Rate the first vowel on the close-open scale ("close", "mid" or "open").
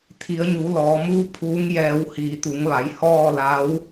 close